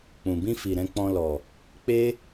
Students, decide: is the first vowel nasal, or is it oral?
nasal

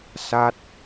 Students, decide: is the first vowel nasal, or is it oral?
oral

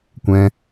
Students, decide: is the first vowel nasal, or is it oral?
nasal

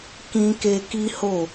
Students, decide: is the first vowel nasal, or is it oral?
nasal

